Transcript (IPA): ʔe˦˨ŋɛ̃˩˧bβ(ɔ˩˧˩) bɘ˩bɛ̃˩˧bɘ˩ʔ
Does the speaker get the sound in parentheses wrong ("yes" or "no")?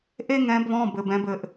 yes